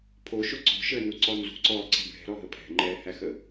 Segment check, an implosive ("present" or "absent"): absent